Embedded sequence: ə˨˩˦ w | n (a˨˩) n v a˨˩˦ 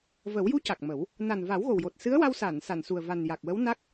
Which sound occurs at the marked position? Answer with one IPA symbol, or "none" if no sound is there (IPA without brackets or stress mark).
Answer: a˨˩